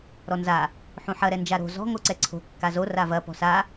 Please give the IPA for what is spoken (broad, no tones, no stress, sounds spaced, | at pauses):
ɾ ɔ n z a | ħ ũ ħ ɐ ɾ ɛ n d͡ʒ a ɾ o̤ z ɔ̤ ŋ o ǀ ɛ ǀʰ o̤ kː a z o r a v ɐ p ɔ̤ s a